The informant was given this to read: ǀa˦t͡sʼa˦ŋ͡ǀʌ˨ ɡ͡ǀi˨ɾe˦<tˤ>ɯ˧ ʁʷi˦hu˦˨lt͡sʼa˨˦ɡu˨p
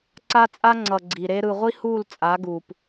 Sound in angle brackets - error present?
yes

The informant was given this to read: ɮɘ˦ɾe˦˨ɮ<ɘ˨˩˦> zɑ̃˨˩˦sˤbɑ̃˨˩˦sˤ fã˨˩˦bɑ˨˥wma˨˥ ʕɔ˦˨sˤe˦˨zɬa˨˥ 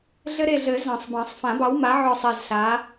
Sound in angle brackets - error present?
no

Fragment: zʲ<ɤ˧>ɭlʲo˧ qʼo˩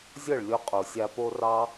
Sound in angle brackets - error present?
yes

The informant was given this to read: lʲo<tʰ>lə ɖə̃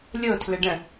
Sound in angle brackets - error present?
no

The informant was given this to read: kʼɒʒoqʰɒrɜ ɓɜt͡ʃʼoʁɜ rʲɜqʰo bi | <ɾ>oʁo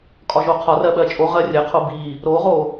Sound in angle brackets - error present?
no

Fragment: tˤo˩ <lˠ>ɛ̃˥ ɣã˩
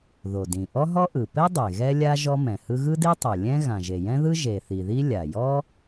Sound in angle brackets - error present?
yes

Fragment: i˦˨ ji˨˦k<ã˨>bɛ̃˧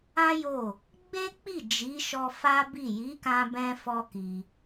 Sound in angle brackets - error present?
yes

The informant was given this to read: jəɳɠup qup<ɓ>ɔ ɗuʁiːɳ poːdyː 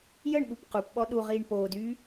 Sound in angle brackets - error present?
no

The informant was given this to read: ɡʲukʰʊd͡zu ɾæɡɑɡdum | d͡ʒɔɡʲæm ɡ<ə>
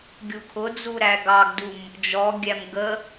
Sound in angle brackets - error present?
no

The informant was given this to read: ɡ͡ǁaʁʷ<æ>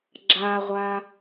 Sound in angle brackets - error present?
yes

